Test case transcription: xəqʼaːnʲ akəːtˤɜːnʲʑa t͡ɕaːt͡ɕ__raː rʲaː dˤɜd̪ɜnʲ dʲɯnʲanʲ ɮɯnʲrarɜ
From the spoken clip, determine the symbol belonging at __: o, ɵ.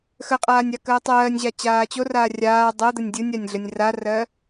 o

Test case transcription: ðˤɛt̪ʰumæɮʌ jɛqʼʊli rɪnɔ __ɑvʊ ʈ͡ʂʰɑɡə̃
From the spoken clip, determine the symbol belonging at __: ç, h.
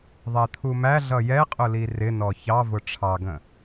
ç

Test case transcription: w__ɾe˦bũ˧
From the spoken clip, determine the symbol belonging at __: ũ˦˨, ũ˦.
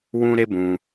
ũ˦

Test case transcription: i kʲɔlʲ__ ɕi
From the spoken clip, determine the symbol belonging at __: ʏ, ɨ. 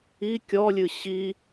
ɨ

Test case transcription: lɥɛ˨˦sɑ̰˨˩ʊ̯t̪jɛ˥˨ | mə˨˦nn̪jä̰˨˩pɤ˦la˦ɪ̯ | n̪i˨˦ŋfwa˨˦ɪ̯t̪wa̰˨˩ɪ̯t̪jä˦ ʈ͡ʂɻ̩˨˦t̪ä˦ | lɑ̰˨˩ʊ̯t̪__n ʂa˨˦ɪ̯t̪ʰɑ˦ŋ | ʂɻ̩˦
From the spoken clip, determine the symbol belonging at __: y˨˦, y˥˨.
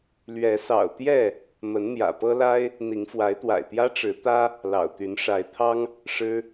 y˨˦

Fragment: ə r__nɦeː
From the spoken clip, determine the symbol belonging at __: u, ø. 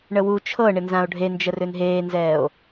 ø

